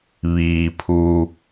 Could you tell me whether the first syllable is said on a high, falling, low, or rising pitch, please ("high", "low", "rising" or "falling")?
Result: low